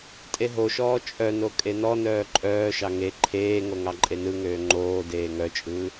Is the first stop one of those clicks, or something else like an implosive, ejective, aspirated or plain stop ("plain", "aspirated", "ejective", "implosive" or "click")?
ejective